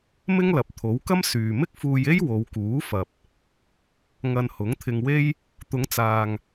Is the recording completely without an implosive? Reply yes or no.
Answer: yes